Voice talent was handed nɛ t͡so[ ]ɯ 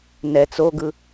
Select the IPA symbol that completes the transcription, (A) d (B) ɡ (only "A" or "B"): B